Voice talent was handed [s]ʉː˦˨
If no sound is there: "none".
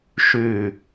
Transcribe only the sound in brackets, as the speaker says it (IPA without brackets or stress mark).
ʃ